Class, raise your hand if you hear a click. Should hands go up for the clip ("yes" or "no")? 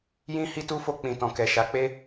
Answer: no